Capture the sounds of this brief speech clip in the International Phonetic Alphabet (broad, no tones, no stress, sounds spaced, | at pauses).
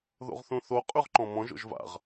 ð o̰ ʁ θ ũ θ o qʼ ʉ ʁ ǃ ɔ̃ m ɔ̃ ʒ o̰ ʒ v a̰ ʁ